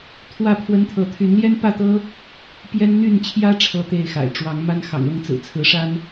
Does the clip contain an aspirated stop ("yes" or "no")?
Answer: yes